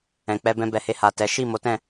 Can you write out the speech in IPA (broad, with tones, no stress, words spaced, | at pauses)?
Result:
ɛ̃˨k͡pɛ˧bɛ̃˧ bɛ˨he˧ha˨ tɛ˨˦ ʃi˦˨ mo˨˦tɛ̃˦˨